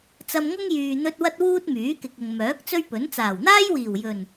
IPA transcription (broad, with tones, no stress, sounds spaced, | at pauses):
t͡s ɐ˧ m ŋ ʊ˥ ŋ j yː˨ n̪ ɵ˧ t̚ w ɐ˥ t̚ w uː˥ t̚ m yː˨˥ k ɪ˨ k̚ ʊ˨ ŋ m œː˨˥ k̚ t͡s ɵ˥ ɥ p ɵ˨˥ n t͡s aː˨˩ w n̪ aː˥ j w iː˨˩ w j ɵ˨˩ n